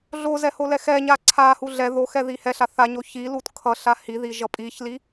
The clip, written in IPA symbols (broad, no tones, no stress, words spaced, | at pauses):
ɮozɛholɛ xɛɲa ǀʰa huɮɛ ðoxɛ ðihɛɬa θaɲo çilut kʰʌɬa hiði ʒʌpʼiçli